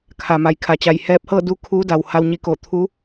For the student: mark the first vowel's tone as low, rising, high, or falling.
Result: low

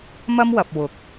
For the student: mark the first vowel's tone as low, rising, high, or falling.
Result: high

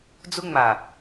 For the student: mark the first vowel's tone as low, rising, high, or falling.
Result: high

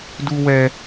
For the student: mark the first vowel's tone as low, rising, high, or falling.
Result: high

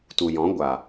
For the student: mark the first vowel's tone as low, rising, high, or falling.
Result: low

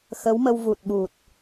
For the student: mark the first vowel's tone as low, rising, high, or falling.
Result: rising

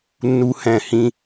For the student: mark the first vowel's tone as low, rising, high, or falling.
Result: high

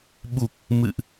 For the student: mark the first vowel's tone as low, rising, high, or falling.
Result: low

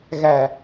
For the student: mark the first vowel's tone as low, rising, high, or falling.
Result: low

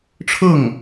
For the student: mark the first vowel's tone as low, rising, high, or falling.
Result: falling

